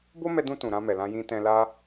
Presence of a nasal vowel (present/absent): present